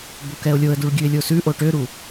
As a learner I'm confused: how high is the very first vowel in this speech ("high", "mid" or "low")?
mid